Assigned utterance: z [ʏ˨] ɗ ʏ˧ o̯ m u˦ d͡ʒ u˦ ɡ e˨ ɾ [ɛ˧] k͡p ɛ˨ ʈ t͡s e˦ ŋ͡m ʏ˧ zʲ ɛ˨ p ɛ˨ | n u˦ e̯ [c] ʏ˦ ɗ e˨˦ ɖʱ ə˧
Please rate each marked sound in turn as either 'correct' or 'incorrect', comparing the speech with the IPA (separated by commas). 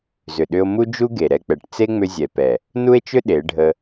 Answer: correct, correct, incorrect